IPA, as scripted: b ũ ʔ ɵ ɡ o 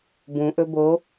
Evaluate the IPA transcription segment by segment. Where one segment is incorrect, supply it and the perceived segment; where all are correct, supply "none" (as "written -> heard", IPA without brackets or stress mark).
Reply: ɡ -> b